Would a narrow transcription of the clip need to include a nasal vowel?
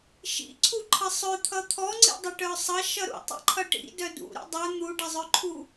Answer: no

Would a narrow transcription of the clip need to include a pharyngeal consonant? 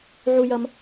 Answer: yes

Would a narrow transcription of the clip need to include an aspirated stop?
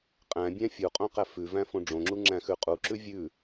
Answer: no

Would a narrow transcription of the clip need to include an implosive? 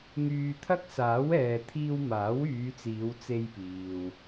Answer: no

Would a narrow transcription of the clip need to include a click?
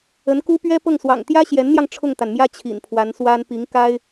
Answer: no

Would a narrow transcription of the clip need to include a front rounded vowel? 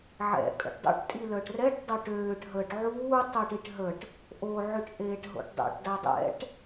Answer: yes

